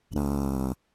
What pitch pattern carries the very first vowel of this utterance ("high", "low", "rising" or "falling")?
low